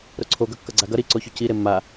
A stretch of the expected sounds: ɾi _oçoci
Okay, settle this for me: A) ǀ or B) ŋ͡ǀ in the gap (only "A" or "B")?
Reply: A